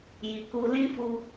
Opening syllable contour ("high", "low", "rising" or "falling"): low